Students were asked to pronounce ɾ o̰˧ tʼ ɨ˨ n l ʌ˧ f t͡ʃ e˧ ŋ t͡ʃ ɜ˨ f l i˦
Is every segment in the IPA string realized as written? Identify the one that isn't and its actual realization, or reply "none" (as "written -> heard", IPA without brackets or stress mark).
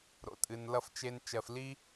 ŋ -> n